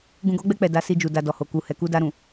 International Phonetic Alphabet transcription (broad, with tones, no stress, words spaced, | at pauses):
ɡũ˨ɡɔ˨˦ɡ͡bɛ˧ k͡pɛ˨ da˨˦si˧d͡ʒu˨ da˨ dɔ˨ho˨ ku˨hɛ˨ ku˧da˧ɾũ˨